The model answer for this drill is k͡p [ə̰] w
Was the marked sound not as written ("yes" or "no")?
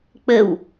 yes